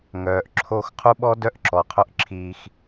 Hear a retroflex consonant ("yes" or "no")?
no